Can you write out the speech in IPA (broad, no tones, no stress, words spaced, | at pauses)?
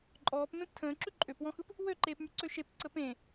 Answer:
ǃʼɔːp mẽptʰə̃ːǁʉ ǃʼøpwɔ̃xɯp | wøǃeːpmy ǀøʃep ǀəpẽ